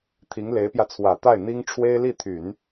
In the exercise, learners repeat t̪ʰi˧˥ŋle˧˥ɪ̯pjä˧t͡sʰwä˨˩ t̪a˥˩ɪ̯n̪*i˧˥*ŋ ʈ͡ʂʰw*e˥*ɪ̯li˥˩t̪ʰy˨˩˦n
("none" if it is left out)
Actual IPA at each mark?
i˥, e˥

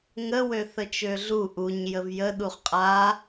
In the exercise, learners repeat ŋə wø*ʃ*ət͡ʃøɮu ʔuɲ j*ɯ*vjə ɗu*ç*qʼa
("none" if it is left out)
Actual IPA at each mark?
θ, ə, χ

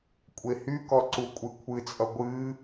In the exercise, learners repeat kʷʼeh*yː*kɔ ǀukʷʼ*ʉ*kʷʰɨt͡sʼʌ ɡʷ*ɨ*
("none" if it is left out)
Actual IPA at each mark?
y, ɨ, ɨ

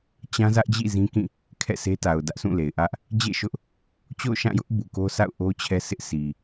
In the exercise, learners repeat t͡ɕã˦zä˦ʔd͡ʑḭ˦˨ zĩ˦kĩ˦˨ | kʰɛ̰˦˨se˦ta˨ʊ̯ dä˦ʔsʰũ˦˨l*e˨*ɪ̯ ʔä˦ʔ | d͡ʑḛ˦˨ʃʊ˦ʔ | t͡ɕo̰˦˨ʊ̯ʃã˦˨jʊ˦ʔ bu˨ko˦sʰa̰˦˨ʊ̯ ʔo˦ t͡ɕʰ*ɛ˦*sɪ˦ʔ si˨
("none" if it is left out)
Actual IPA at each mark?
e˨, ɛ˦

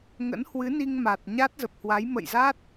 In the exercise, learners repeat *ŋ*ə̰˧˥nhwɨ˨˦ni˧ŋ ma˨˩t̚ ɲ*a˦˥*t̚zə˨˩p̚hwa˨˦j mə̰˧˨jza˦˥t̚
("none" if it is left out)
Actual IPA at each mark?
ŋ, a˦˥

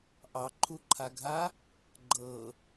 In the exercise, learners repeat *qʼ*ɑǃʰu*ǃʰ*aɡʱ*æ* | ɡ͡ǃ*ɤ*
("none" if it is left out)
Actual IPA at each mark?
ʔ, ǃʰ, a, ɤ

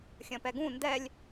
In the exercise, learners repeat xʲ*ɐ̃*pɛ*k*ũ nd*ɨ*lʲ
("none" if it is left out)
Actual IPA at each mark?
ɐ̃, ɡ, ɛ

